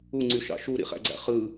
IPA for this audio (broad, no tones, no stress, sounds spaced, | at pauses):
u ŋ͡ǀ y ʃ ɑ̰ ʃ u ɾ ḭ χ æ̰ ɡ͡ǀ æ̰ χ ɯ